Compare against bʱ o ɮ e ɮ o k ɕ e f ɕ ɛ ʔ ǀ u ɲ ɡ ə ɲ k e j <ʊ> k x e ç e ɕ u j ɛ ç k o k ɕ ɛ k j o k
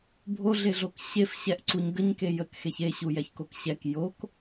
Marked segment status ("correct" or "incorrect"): incorrect